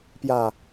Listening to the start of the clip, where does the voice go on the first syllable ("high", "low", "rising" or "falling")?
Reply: low